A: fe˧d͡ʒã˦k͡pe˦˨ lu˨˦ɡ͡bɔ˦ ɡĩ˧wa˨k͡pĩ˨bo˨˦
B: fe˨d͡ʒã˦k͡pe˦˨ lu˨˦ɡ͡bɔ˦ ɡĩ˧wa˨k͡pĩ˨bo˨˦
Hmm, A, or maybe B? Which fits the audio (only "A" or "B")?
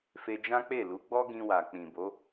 A